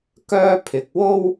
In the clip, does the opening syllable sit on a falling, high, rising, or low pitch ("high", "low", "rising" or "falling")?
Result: high